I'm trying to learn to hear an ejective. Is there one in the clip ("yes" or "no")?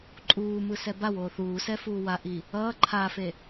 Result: yes